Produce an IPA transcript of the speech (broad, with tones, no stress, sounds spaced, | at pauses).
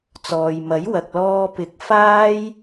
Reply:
t͡s ɔː˨ j m ɐ˨˥ j w ɐ˨ k̚ l ɔː˧ p ɪ˨˥ k̚ f aː˥ j